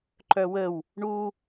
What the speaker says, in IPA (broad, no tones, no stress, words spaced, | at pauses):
ǃœwəw | ɳu